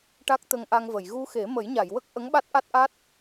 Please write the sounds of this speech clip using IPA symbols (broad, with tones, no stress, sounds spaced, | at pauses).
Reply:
ʈ a˦˥ k̚ t̪ ə˧ ŋ ʔ a˧ ŋ v ə˨˩˨ j ɣ u˧ x e˨˩˦ m ə˨˩˦ j ɲ a˨˩˨ j w ə˦˥ k̚ ʔ ə˧˥ ŋ ɓ a˦˥ t̚ ʔ a˦˥ t̚ ʔ a˦˥ t̚